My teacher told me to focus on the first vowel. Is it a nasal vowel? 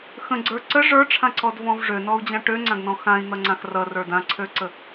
yes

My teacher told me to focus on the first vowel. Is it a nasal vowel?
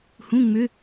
yes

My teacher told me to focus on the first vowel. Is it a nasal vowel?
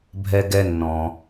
no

